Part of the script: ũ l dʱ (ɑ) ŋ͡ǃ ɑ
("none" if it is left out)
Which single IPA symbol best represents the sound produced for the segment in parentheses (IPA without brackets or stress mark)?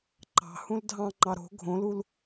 ɑ̃